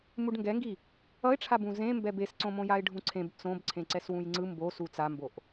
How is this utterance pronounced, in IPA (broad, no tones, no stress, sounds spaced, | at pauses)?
m u ɖ ŋ ɡ ɛ ŋ ɡ i | ʌ ɪ̯ ʈ͡ʂʰ a b ũ z ẽ m b ɛ b e s ǀ õ m õ j a ɪ̯ ɖʱ ũ ǀʰ ẽ b t͡s õ b ǀʰ ẽ ǀ ɛ s w ũ j ŋ͡ǀ ɯ m b o s u t͡s a m b o ʔ